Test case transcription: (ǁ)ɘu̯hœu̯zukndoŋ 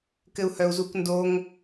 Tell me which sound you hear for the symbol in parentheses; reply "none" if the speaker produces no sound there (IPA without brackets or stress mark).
k